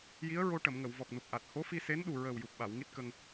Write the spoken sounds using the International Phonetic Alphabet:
j i˧˥ ə̯ ɹ o˧ ʈ ə˨˩˨ m ŋ ə˨˩˨ w v ɔ˨˩ k̚ n u˨˩ p̚ ʔ a˨˩ t̚ h o˧˥ f i˧ s e˧˥ n ɗ u˨˩ ɹ əː˨˩ w j u˨˩ p̚ ɓ a˨˩˨ w ŋ i˦˥ t̚ k ə˧ ŋ

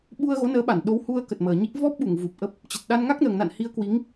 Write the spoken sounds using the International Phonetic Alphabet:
ɓ u˧ ə̯ ɣ o˨˦ n əː˨˦ ɓ a˧˩ n ɗ o˨˦ w h u˧ ə̯ k ə˨˩ t̚ m əː˨˩ ɲ i˦˥ k̚ v ɔ˦˥ p̚ ɓ u˧˩ ŋ v u˨˩ p̚ ʔ ə˦˥ p̚ | t͡ɕ ə˨˩ t̚ ɗ a˧ n ŋ a˦˥ k̚ n əː˨˩ ŋ n a̰˧˨ n h i˧ ə̯ k w i˨˦ ŋ

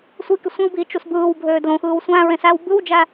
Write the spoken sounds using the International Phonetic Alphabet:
sʷ i k y sʷ ẽ w b iː t͡ʃ u s b ɯː w bʱ øː d l õ x ɯː w sʷ æ̃ ɹ ẽ s æ w b ɯ w d͡ʒ æ

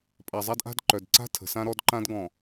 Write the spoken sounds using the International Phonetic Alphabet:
pʼ a˨ zˤ a˦ d ʔ a̤˦ d ǃ œ˨ d ǀ a̤˦ tʰ ə̤˨ s ã˦ ɾ ɔ˦ d ǃ ã˦ d ɡ ɔ̃˨

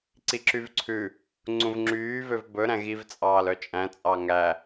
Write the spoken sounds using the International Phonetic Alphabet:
ǀ i ǁ y v ǀʰ ʉ | ŋ͡ǀ ũ v ŋ͡ǁ yː v ø v b ɵ ɾ æ̃ ɣ i v t͡sʼ ɑː l œ t͡ʃʼ æ̃ t͡sʼ ɑ ŋ æ

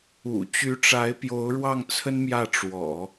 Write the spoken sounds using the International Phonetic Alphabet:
ṵ˨˩ t͡ɕ y˧˥ ʈ͡ʂ a˧˥ ɪ̯ p j o˧˥ ʊ̯ ɻ w ɑ˥˩ ŋ t͡sʰ ə˥ n m j ä˥˩ ʈ͡ʂ w ɔ̰˨˩˦

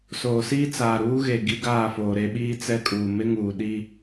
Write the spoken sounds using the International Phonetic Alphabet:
s oː˨ s iː˦ t͡s aː˨ ɾ uː˦ ɣ e˨ ɡ i˦ ɡ aː˦˨ f oː˨ ɾ e˦ ɓ iː˦ t͡s ɛ˦ kʼ uː˨ m ɪ˦ ŋ uː˨ ɗ i˦

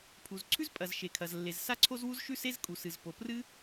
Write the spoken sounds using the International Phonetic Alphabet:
pʰ u˩ z ǀʰ ʉ˥ z pʼ ɐ˩ z ʃ e˩ kʰ ɐ˩ z lː e˩ z s a˥ ǀʰ o˥ z w u˥ z ʃ ʉ˥ s e˥ z kʼ u˩ s ɨ˩ z p o˩ p r ɨ˥

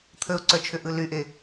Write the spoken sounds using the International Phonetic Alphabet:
t̪ʰ ə ʊ̯ ǀ œ t͡ʃʰ ʏ ʔ ɯ l y ʔ e

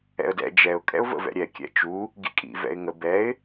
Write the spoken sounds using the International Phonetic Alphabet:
ɛ̰ ə̯ d ɛ̰ d͡ʒ ɛ ʊ̯ kʼ ɛ̰ ʊ̯ v ə̰ v ɛ̰ ɾʲ ɛ kʲ ɛ̰ t͡ʃ u | ɡ ḭ kʼ ḭ v ɛ̰ ɪ̯ ŋ ə b ɛ ɪ̯

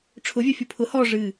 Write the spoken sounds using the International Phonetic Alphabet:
ʈ͡ʂʰ ʊ vʲ œ fʲ u pʰ ʊ h ɔ ʐ ɨ

